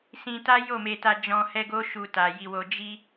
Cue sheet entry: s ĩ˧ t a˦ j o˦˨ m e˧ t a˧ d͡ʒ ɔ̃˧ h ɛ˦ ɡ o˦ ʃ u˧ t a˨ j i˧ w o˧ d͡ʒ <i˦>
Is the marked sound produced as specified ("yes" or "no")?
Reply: yes